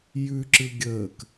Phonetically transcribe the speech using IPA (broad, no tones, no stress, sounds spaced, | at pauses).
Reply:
j ʉ ǁ ɯ ɡʲ əː k